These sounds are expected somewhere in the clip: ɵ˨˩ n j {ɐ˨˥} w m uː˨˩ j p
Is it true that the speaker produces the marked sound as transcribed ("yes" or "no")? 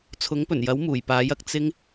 yes